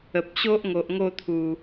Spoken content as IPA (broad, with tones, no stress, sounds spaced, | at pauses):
ə˨ p̚ ɕ o˦ ʔ ŋ o˨ ʔ ŋ o˥˧ t̪ʰ u˨˩